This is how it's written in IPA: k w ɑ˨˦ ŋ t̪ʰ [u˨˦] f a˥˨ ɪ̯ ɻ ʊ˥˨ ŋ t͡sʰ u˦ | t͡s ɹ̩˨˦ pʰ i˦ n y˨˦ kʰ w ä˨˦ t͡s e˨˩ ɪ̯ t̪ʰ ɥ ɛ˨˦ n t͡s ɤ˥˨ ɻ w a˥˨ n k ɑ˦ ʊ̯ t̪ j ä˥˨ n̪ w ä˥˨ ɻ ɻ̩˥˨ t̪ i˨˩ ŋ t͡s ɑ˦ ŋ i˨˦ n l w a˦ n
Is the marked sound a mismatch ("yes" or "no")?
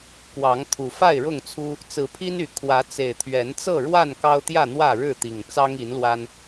yes